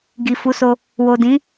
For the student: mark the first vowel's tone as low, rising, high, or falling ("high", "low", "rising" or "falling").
low